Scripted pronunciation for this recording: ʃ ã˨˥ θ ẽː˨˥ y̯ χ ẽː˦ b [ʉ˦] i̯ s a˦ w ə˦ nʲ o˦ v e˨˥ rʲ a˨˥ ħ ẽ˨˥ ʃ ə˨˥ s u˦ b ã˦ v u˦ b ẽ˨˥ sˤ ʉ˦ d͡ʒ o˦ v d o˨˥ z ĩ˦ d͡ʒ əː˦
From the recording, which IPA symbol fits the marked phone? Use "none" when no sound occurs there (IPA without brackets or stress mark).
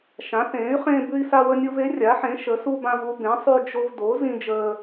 ʉ˦